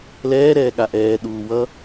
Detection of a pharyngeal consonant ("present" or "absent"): absent